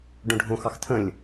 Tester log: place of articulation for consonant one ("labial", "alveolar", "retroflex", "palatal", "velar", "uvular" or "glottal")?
retroflex